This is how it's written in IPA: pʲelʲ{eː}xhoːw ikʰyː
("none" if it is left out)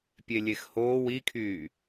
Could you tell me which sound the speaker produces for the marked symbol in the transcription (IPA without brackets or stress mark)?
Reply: e